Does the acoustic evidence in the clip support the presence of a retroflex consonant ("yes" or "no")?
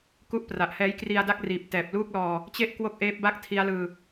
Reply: no